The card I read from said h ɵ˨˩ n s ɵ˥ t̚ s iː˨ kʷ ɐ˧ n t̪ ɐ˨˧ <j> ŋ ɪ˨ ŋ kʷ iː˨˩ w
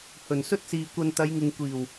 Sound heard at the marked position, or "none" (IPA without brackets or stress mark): j